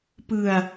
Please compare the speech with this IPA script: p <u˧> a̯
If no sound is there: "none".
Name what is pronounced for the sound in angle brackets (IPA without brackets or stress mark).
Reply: ɯ˧